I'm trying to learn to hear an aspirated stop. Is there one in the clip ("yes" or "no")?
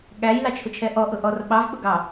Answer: yes